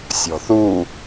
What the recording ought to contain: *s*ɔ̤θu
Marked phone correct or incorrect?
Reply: incorrect